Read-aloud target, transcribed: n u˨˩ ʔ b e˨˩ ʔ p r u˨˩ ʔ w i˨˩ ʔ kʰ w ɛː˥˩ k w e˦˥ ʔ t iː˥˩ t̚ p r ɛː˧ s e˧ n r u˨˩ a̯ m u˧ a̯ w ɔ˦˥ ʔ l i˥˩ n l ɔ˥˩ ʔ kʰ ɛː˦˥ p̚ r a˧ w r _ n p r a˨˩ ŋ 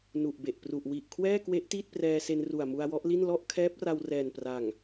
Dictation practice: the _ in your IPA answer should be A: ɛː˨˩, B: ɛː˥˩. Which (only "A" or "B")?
A